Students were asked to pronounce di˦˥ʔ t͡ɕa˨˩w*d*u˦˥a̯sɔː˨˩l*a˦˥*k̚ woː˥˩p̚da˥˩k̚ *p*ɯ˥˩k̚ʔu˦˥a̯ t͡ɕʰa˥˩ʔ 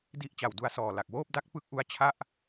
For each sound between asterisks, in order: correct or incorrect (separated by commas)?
correct, incorrect, correct